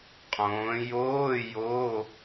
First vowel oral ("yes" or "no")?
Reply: no